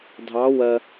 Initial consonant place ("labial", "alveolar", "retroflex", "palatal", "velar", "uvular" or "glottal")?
alveolar